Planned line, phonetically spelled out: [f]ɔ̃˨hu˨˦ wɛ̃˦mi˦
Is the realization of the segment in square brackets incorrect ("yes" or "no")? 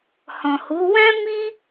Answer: yes